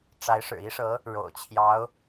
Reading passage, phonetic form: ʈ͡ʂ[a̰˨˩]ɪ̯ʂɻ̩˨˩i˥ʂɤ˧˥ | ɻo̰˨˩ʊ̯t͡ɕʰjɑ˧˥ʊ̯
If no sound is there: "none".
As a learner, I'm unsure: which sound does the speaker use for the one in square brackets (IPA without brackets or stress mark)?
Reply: a˧˥